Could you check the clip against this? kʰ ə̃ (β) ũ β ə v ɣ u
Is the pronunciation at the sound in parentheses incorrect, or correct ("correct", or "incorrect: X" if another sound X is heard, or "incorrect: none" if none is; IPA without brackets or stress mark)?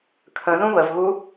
incorrect: ð